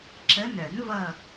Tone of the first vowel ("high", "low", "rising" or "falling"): rising